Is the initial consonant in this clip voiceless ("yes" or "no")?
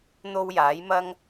no